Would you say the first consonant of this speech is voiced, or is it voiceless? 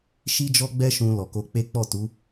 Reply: voiceless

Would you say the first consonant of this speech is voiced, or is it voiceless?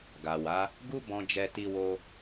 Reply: voiced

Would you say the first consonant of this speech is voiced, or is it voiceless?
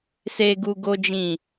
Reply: voiceless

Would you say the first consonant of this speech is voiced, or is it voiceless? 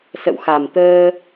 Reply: voiceless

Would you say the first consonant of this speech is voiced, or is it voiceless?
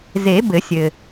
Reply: voiced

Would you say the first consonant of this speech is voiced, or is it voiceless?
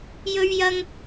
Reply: voiced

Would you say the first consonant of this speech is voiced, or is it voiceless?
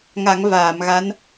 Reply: voiced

